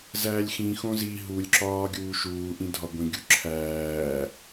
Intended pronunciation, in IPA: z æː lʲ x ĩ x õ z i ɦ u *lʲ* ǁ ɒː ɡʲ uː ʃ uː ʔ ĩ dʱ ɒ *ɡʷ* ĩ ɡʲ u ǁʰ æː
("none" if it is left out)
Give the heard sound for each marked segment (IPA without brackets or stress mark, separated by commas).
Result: lʲ, ɡʷ